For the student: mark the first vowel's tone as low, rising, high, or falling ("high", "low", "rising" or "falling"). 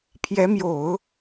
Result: rising